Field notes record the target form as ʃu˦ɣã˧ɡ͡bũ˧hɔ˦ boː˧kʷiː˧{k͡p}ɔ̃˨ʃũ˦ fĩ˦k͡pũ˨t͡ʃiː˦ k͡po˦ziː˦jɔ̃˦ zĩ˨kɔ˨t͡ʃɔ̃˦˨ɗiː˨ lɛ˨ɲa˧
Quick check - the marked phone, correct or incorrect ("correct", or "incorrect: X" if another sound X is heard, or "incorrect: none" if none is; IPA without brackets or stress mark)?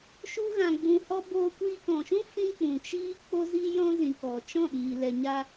incorrect: k